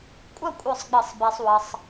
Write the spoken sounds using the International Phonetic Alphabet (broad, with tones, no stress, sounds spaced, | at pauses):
kʷʼ ɐ˥˨ kʷʼ œ˧˩ sˤ ɡ͡b ɘ˨˩˦ sˤ b e˧ sˤ w ə˧ sˤ